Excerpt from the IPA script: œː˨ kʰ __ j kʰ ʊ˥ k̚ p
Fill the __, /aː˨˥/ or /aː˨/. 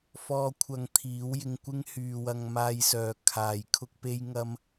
aː˨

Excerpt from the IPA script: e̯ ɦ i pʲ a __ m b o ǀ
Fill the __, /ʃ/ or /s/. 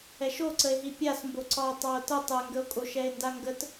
s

